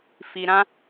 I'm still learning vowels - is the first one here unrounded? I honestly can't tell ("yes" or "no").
yes